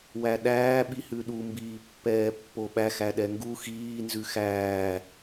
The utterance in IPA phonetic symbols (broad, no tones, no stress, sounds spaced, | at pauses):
w æ ɗ æː ɓ i h ʉ ɗ u m b iː pː ɛː pː o ɓ æ x æ ɗ ɛ ŋ ɡ u x iː n z ʉ x æː